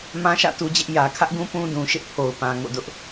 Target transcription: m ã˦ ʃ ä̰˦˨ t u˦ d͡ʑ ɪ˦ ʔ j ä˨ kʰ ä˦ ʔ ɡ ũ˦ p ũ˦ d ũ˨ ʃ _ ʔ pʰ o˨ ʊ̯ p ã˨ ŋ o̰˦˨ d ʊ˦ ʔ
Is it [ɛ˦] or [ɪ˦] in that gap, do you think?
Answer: ɪ˦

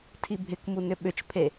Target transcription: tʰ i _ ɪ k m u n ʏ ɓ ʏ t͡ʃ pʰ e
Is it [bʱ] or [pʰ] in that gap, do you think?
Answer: bʱ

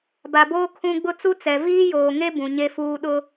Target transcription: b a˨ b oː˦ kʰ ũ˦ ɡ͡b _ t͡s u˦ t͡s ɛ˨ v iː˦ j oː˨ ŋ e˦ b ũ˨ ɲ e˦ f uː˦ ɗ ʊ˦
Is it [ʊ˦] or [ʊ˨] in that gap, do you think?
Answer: ʊ˦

